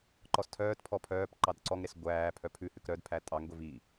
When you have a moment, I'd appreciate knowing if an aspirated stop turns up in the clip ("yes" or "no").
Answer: yes